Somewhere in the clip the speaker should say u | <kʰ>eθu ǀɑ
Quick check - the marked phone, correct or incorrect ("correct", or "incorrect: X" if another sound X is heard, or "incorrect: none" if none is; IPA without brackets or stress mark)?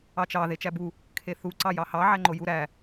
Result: correct